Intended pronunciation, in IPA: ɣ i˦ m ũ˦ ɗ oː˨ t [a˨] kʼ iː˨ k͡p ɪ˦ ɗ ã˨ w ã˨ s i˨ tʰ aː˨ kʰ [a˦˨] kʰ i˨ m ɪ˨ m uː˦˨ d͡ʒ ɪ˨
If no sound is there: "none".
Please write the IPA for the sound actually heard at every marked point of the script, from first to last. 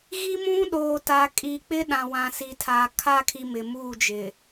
a˨, a˦˨

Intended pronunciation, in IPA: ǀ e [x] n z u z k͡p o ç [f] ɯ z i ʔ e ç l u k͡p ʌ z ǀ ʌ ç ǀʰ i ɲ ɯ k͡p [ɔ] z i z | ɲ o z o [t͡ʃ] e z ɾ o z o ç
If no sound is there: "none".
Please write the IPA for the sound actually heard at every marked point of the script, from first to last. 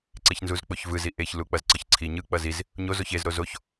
ç, v, ʌ, ç

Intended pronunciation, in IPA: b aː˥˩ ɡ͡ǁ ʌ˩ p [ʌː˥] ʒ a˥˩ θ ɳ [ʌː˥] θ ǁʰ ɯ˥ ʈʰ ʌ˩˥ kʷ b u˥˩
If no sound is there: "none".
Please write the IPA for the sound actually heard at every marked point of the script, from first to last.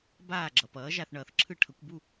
ʌː˩˥, ʌː˩

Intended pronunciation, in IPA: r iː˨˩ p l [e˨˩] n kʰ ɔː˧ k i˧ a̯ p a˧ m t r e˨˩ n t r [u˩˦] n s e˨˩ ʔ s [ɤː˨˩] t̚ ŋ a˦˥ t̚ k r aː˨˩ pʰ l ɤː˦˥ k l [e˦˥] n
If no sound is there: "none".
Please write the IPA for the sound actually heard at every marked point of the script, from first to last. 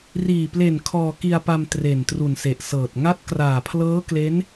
e˨˩, u˨˩, ɤː˨˩, e˦˥

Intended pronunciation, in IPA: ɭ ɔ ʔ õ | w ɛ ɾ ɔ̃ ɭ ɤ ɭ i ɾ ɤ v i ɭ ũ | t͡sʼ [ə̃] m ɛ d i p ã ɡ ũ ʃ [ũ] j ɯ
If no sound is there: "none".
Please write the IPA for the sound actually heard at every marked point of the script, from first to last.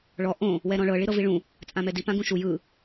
ã, u

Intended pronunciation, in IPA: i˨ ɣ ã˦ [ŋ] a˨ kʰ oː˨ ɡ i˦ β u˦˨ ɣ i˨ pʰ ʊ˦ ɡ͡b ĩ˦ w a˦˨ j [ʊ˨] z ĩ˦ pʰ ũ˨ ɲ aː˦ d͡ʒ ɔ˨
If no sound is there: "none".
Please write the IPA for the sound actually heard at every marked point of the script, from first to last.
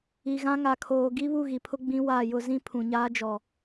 ŋ, ʊ˦

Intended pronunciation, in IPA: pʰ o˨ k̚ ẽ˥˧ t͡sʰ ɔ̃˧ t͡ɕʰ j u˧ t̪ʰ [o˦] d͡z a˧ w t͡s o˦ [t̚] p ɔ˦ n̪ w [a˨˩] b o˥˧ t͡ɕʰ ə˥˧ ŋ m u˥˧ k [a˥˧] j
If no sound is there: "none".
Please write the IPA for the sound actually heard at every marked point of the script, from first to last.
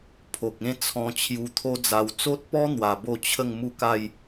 o˦, t̚, a˨˩, a˥˧

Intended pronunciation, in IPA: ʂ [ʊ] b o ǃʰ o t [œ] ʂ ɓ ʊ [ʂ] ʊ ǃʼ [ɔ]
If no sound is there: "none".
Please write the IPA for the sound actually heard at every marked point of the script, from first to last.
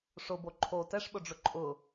ʊ, ɛ, ɖ͡ʐ, ʊ

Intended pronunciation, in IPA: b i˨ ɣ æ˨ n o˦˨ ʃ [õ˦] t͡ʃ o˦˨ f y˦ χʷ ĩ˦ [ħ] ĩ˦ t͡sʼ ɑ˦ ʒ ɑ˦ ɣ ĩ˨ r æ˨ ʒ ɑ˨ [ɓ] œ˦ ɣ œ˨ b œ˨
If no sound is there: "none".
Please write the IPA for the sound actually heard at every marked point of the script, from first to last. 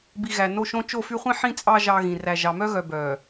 õ˦, ħ, m

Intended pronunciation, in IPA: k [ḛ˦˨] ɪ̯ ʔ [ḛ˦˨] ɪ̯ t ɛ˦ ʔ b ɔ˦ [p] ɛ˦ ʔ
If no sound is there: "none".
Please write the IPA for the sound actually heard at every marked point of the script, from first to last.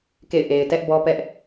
ḛ˦˨, e˨, p

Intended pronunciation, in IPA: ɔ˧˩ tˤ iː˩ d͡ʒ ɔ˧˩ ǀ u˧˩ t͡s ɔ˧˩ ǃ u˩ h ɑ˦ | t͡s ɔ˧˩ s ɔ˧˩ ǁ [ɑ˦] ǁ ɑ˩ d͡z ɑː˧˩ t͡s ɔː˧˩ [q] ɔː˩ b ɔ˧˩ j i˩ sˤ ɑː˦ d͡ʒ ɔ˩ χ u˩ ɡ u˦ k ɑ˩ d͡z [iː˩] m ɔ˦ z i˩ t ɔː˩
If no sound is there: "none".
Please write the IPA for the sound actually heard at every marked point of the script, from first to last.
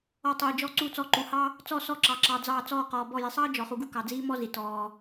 ɑ˩, q, iː˦

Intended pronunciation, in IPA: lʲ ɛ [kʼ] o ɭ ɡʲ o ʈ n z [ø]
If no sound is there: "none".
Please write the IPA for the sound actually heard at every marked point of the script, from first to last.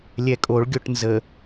kʼ, ə

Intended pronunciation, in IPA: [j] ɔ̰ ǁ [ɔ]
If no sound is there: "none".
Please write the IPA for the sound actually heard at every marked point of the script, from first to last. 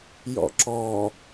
j, ɔ

